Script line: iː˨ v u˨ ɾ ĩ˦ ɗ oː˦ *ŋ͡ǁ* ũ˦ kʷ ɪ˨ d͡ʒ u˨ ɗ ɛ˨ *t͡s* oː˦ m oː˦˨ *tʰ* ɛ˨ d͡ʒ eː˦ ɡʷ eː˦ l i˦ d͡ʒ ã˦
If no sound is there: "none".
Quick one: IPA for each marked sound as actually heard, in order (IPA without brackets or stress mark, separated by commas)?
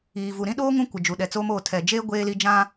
ŋ, t͡s, tʰ